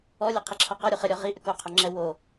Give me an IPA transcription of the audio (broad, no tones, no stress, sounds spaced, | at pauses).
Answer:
ɔ lʲ e qʰ i ǁʰ ɒ q ɒ ɾʲ u χ ɘ ɾʲ ɔ ʁ i ʔ ʏ k o qʰ o ŋ͡ǁ ɛ w o